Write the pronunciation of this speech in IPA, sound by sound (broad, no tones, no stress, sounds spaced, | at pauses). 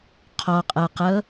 qʰ ɔ qʼ ɤ q ɤ